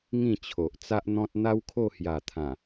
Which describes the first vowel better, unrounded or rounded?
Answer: unrounded